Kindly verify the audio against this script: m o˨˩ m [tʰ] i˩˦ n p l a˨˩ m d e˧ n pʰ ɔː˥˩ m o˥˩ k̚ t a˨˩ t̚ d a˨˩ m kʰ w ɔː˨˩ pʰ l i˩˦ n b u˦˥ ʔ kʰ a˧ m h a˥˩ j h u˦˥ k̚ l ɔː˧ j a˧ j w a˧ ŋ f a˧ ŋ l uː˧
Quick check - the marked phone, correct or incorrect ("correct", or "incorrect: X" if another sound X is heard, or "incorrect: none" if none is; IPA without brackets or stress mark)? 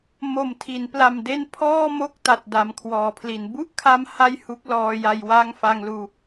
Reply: correct